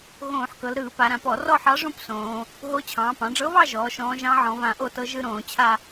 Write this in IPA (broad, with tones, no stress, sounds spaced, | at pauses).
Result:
ɣ õː˧˩˧ ħ k ɤ˩˧ l ɾ ɯː˧˩˧ p a˩˧ ɾ ã˧˩˧ p ɔ˧˩˧ r ɔ˥˧ ħ ɑ˧˥ ʐ õ˥˧ p s õː˩˧ | ɦ o˧˥ t͡ɕʰ ɑ̃ː˩˧ p ɑ̃˩˧ ɖ͡ʐ ɤ˧˥ β ɑ˥˧ ʒ ɔː˩˧ ʃ ɔ̃ː˧˥ ʒ ɑ̃˧˥ ʕ ɔ̃˩˧ β ã˧˩˧ ʔ o˥˧ t ɤ˧˥ ʒ ɯ˥˧ ɾ õː˧˩˧ t͡ɕʰ a˥˧